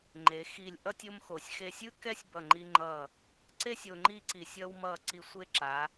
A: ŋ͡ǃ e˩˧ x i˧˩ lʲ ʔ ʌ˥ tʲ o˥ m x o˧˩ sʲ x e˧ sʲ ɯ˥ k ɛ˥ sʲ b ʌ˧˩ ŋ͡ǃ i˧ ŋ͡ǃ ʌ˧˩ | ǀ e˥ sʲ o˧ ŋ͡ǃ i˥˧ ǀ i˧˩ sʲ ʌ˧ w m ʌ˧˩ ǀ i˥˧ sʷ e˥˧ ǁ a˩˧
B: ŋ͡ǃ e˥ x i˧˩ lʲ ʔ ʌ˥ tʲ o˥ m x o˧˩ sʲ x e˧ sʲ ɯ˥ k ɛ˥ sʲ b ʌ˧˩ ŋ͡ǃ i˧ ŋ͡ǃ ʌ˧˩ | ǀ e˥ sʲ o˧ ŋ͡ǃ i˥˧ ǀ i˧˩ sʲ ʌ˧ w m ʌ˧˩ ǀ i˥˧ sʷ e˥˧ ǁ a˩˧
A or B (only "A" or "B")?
A